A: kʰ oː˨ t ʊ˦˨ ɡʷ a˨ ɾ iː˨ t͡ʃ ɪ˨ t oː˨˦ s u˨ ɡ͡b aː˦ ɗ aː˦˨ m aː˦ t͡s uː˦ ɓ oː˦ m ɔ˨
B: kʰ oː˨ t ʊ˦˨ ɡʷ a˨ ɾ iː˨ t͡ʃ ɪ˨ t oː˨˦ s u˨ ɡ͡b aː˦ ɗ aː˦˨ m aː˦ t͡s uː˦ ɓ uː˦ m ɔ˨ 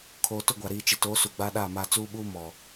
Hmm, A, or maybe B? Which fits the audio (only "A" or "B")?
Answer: B